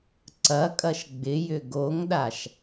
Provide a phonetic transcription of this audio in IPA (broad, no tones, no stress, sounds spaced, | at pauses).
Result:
ǀ ɐ kʼ ɐ ʃ ɡ͡b ɪ j ʏ ɡ o ŋ ɗ a ʃ